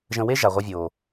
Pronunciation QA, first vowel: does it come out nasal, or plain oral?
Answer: nasal